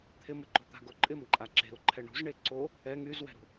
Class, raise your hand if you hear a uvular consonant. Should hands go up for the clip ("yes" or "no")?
no